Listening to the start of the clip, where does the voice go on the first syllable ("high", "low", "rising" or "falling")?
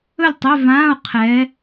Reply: falling